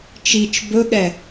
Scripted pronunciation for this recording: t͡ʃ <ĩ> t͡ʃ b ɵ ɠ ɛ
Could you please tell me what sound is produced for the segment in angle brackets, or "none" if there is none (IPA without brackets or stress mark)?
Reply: i